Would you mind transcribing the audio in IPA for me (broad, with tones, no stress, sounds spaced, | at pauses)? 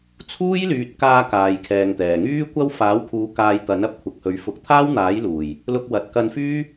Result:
t͡sʰ uː˥ j l yː˨ t̚ k aː˧ k aː˨ j kʰ ɛː˨ ŋ t̪ ɛː˨˩ ŋ yː˥ kʷ ɐ˥ w f aː˨˥ w kʰ uː˨˧ k aː˧ j t̪ ɐ˨˥ n ɐ˥ p̚ kʷʰ ɐ˨ k̚ h ɵ˨˥ ɥ f ʊ˨ k̚ t̪ʰ aː˥ w n̪ aː˨˥ j l uː˨˩ j | l ʊ˧ k̚ w ɐ˨ t̚ k ɐ˧ n f yː˥